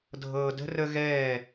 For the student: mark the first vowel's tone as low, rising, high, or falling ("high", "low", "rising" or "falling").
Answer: low